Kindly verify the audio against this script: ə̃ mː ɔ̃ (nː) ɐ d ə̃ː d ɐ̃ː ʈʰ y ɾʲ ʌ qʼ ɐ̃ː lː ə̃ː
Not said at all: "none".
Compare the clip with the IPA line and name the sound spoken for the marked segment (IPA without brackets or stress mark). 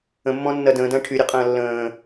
nː